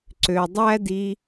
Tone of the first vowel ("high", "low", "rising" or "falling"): low